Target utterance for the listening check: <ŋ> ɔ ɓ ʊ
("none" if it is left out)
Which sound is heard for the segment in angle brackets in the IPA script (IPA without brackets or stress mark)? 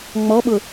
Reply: ŋ͡m